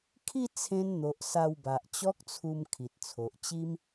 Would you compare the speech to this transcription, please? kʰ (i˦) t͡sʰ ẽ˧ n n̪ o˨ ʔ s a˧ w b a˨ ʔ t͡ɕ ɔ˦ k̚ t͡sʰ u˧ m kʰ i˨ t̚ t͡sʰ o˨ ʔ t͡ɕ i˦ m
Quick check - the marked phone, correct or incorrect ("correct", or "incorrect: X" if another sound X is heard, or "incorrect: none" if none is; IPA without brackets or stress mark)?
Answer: incorrect: i˥˧